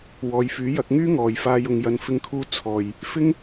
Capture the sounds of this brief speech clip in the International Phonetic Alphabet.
w ɔː˨˧ j f yː˨˥ j ɐ˨˥ k̚ ŋ yː˥ ŋ ɔː˨ j f aː˧ j ʊ˨ ŋ j ɐ˨˧ n f ɪ˧ ŋ kʰ uː˧ t͡sʰ ɔː˨ j | f ɪ˥ ŋ

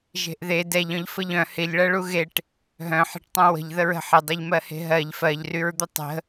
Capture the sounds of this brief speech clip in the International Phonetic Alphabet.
ʒ e̤ ʔ ð e d ɛ ʎ œ̃ ʎ f ə ʎ œ̃ h ɪ ʎ ɭ ɜ ɭ u ɣ e ʈ | ɦ œ̃ ħ e̤ ʈ tˤ œ̃ w ə̤ ʎ ð ə ɹ ə̤ ħ ɪ dˤ œ ʎ m ɜ h e̤ ɦ ɜ ʎ f ɜ ʎ r y ɹ d̪ ə tˤ ə̤

